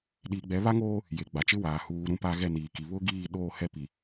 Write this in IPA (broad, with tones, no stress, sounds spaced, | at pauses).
ɗ iː˨ ɡ͡b ɛ˨˦ β a˦ ŋ oː˦ | j e˨ ɡ͡b a˨ t͡ʃ ɪ˦ w aː˨ h uː˨ ɾ ũ˦ p a˦ ɣ ɛ˦˨ n iː˨ k i˨ β ʊ˦ ɡ iː˦˨ ɗ oː˦˨ h ɛ˦˨ p i˨